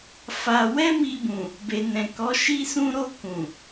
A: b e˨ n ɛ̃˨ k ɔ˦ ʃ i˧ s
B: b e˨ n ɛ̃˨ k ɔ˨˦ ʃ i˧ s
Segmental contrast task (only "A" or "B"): B